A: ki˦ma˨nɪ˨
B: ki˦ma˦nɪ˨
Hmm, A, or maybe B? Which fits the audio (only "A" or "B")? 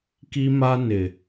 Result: B